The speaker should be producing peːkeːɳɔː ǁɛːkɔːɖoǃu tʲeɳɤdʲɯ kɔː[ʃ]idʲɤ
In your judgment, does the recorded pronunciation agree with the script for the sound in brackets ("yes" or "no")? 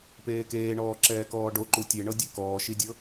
yes